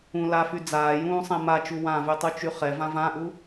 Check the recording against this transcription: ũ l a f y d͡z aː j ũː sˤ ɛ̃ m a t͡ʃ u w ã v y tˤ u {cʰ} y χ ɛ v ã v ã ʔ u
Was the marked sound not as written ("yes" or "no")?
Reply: yes